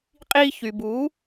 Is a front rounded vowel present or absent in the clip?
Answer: present